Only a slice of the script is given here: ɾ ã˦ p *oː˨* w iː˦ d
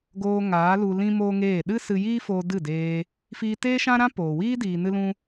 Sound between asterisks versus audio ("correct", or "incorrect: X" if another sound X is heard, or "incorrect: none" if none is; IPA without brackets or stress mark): correct